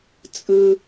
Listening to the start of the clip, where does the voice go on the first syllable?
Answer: low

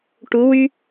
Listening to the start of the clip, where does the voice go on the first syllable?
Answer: rising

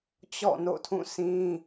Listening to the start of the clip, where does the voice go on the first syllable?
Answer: falling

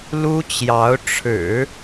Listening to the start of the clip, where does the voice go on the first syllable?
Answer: high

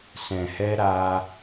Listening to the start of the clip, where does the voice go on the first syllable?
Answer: low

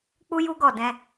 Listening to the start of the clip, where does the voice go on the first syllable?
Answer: high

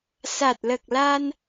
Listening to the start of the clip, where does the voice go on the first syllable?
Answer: low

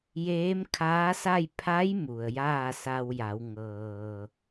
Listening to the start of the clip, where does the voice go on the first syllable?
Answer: rising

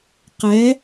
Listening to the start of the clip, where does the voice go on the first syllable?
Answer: rising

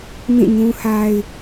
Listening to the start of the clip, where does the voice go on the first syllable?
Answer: falling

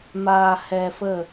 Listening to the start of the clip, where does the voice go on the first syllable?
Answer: low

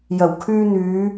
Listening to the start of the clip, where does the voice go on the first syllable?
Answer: low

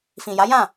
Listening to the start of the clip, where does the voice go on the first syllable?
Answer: low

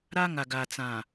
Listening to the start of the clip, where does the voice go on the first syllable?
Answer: high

